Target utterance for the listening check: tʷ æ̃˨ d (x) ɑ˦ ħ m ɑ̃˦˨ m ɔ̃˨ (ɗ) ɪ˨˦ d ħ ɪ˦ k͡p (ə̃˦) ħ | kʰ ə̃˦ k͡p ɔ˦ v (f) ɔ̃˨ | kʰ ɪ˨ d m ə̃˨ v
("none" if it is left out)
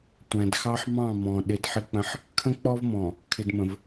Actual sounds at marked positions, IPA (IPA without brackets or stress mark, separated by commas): x, ɗ, ə̃˦, m